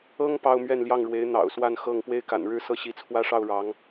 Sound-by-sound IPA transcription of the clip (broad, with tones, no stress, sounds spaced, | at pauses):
ɤ˥ ŋ p ɑ˥ ʊ̯ m ɥ ɛ˥˧ n l j ɑ˥˩ ŋ ɻ w e˧˥ ɪ̯ n̪ ɑ̰˨˩ ʊ̯ s w a˥˧ n x ɤ˥˩ ŋ p w e˥ ɪ̯ k a̰˨˩ n ɻ ɻ̩˥ s ɤ˥˩ ɕ i˧˥ t͡sʰ w ä˥ ʂ ɑ˥˩ ʊ̯ ɻ ɑ˧˥ ŋ